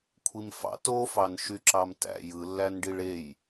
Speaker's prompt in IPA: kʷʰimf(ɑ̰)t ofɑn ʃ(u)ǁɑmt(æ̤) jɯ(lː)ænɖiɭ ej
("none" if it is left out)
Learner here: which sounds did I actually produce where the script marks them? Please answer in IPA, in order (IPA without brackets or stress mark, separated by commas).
ɑ̰, y, æ̰, lː